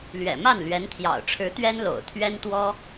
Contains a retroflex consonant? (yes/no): yes